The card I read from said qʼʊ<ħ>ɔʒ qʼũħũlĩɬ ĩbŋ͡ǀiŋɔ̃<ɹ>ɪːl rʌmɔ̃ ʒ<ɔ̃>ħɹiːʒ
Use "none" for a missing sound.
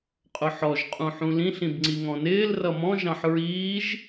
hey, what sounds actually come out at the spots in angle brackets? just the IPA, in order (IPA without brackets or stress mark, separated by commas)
ħ, n, ɑ̃